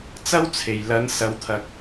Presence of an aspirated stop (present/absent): present